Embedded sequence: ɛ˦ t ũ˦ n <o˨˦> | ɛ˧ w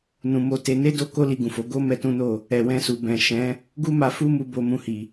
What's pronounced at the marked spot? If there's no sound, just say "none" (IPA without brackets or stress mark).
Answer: o˦˨